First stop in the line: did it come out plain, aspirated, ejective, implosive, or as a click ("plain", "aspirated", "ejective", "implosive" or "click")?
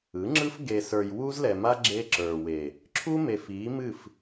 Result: click